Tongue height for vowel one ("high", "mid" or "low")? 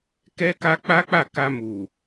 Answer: mid